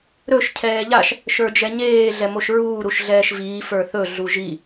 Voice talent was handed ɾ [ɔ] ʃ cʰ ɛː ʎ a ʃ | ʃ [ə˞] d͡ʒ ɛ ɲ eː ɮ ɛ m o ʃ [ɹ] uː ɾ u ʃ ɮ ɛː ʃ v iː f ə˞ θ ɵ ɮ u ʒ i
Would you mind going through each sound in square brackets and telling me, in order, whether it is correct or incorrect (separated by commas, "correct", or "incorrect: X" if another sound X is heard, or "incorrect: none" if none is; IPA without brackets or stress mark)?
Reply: incorrect: ɵ, correct, correct